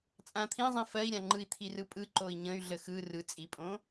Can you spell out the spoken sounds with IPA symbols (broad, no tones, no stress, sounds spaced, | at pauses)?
t͡sʼ ã t̪ʰ ĩ zˤ ĩ f ɜ i̯ ɾʲ ã ŋ͡ǃ ɯ i̯ t̪ʰ i r ɯ pʼ ɯ ǃ o i̯ ɲ ə̃ y̯ ɮ ə x ɯ r ɯ t͡sʼ i pʼ õ